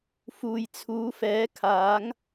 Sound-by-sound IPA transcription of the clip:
f uː˨ j t͡sʰ uː˨˥ f ɛː˨˥ kʰ aː˨˥ ŋ

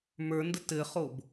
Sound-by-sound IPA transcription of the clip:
m ə˞ n d ə t ɘ χ o b

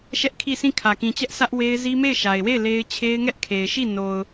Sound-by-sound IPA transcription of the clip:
ʃ ɛ˦ ʔ kʰ i˦˨ s ĩ˦˨ kʰ ä˨ k ĩ˨ t͡ɕ ɛ˦ ʔ s ä˦ ʔ w e˦ ɪ̯ z i˦ m e˦˨ ɪ̯ ʃ a˨ ɪ̯ w e˦˨ ɪ̯ l e˦ ɪ̯ t͡ɕʰ e˦ ɪ̯ ŋ ɛ˦ ʔ kʰ e˨ ɪ̯ ʃ i˦˨ n o˨ ʊ̯

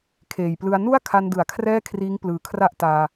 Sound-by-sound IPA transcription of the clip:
kʰ eː˨˩ j p l ɯ˧ a̯ n u˥˩ a̯ kʰ a˧ n d ɯ˩˦ a̯ kʰ r ɛː˥˩ kʰ r iː˦˥ ŋ p l ɯː˨˩ kʰ r a˥˩ ʔ t aː˧

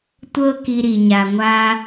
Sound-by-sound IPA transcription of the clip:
tʷ ɤ˥ k i˧ ɾ i˩ ɲ a˩ ŋʷ a˧

